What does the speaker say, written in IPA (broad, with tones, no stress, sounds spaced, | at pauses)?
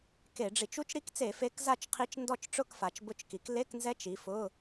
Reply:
k e˧˩˧ ɖ͡ʐ i˧˩˧ t͡ʃ u˧˥ t͡ʃ ɾ i˧˥ k t͡s e˧˩˧ f e˧˥ k z a˥˨ t͡ʃ qʰ i˧˥ t͡ʃ n d ɔ˥˨ t͡ʃ ʈ͡ʂ ʊ˥˨ k f a˩˧ t͡ʃ b ʊ˧˥˧ t͡ʃ k i˩˧ k l e˧˥˧ k n z ɛ˧˥ t͡ʃ i˩˧ f ʊ˧˥˧